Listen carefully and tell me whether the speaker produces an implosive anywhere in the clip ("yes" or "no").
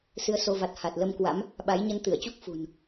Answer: yes